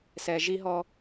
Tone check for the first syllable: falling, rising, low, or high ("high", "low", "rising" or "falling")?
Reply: low